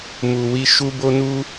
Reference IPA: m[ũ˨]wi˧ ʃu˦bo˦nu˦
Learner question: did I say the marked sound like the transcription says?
no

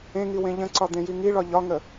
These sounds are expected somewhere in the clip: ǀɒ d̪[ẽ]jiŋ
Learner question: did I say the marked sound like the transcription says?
yes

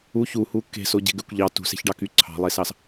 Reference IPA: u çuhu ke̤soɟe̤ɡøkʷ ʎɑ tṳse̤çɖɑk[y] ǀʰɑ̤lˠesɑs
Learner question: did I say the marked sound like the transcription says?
yes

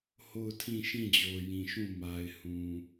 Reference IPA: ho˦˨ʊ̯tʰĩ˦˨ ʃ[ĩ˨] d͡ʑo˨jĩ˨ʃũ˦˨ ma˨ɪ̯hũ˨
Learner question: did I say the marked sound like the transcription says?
no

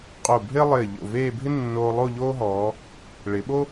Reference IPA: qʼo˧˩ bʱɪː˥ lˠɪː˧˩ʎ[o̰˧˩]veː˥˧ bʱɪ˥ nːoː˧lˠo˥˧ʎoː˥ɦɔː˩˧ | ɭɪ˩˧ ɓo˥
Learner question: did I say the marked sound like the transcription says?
yes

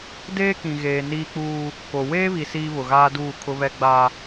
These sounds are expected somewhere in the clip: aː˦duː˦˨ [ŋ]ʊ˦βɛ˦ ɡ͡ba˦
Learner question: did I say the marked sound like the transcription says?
no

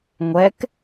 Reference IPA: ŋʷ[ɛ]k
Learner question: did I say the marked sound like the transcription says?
yes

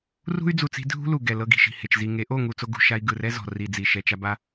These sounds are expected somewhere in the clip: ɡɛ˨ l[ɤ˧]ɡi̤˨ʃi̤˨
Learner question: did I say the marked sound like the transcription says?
yes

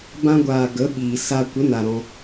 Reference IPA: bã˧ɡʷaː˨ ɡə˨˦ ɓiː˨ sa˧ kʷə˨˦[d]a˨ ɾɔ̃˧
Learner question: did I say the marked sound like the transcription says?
no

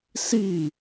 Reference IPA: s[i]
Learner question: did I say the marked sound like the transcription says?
yes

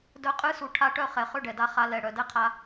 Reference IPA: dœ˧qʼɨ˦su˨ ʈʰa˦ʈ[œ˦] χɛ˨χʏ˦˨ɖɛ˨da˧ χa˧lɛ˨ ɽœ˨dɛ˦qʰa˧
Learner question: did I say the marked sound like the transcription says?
yes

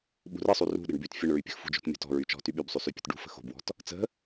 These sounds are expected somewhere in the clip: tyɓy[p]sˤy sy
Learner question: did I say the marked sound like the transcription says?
no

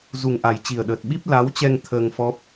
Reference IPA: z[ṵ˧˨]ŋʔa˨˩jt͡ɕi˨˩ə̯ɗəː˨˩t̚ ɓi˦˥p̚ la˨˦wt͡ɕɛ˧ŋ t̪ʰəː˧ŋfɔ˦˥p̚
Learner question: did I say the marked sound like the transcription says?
no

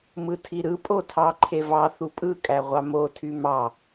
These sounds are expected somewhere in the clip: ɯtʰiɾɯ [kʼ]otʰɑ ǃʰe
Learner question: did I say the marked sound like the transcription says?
no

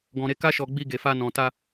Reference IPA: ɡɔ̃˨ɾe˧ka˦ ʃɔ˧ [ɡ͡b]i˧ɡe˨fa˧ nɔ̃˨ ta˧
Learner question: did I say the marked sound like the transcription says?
yes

